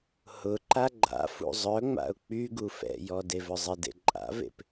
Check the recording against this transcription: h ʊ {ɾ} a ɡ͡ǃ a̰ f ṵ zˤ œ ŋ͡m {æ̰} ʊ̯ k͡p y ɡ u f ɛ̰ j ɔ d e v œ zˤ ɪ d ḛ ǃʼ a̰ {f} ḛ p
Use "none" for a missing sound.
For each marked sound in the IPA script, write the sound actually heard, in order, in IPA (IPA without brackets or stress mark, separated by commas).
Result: ǃ, a̰, v